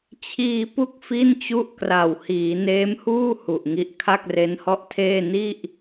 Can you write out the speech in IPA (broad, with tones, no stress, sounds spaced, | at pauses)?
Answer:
t͡ɕʰ iː˧ p u˦˥ k̚ f i˥˩ n t͡ɕ u˥˩ ʔ k r a˨˩ w h iː˩˦ n eː˦˥ m h uː˥˩ h u˨˩ ʔ ŋ i˦˥ ʔ kʰ a˥˩ k̚ r e˦˥ n h ɔ˥˩ ʔ tʰ eː˥˩ n i˥˩ ʔ